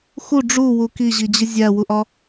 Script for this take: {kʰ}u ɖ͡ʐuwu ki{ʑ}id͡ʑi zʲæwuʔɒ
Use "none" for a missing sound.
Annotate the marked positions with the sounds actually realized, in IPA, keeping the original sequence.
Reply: x, ʑ

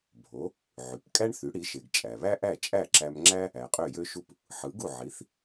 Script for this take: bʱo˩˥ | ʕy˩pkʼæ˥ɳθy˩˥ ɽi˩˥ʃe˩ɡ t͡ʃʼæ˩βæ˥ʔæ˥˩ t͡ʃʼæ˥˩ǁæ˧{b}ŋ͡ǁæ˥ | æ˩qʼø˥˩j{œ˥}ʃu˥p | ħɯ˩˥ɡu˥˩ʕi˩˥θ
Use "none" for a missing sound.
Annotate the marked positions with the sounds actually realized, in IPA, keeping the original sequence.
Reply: m, ø˥

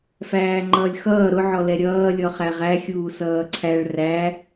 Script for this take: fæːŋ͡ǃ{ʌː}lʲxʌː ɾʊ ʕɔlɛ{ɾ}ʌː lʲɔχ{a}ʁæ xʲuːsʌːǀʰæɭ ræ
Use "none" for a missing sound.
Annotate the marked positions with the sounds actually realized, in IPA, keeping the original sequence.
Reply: ʌː, ɾʲ, æ

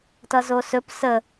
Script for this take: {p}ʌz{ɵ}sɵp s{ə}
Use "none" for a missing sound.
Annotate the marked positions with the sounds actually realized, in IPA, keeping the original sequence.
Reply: t, o, ə

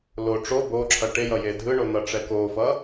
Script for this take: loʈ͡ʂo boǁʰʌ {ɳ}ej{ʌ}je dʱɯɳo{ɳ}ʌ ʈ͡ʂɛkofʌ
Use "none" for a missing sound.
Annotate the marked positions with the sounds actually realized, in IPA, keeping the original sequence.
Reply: ʈ, ʌ, n̪

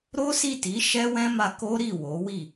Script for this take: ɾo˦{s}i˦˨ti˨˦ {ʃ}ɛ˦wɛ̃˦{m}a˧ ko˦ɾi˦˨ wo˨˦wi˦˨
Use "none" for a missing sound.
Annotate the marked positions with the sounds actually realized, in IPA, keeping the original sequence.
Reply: s, ʃ, m

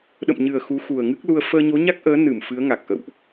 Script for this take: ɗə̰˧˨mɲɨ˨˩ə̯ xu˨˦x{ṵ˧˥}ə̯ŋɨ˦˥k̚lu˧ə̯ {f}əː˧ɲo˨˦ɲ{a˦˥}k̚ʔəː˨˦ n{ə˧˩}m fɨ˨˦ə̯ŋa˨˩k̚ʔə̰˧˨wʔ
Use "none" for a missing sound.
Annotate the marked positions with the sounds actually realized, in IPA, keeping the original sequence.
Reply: u˨˩, f, a˦˥, ɨ˧˩

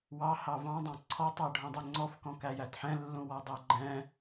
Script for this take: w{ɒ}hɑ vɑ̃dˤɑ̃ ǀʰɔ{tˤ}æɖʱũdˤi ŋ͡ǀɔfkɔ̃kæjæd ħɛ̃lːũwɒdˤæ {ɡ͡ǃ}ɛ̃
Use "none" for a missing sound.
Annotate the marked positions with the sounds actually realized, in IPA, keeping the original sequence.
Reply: ɑ, tˤ, ɡ͡ǃ

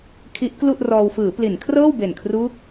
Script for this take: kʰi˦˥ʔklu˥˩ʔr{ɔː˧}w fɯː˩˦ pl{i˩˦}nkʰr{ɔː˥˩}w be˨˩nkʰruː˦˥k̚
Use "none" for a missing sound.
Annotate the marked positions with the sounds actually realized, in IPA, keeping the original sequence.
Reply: ɔː˧, i˩˦, ɤː˥˩

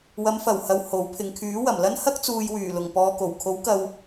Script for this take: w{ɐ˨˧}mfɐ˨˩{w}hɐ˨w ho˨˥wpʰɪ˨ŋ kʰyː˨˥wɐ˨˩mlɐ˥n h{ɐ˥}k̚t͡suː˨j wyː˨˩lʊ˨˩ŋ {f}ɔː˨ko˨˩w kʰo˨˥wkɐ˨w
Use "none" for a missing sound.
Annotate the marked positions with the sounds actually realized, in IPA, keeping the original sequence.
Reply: ɐ˨˧, w, ɐ˥, p

